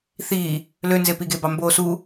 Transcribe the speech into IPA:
θ iː | l ø n z e p i ɡ e b ɑ m b oː s u

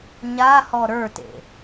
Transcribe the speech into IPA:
ɲ a h ɔ ɾ ə˞ t ḛ

